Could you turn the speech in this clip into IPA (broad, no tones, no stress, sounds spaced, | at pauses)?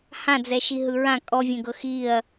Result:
h ã d͡z ɛ ʃ i ɦ ɯ ɹ ã kʼ ɔ vʲ ɛ̃ ɡ ɤ x i ɐ̯